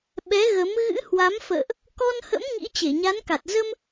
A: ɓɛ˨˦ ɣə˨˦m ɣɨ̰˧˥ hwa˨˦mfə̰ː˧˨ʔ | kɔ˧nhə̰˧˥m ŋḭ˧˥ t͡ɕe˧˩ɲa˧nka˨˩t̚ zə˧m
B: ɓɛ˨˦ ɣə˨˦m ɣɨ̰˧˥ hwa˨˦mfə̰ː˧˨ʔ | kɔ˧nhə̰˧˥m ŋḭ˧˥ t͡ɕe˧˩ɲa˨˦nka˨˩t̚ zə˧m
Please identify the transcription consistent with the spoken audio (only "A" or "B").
B